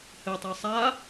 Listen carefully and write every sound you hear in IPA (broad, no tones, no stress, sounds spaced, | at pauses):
h ɘ tˤ e sˤ a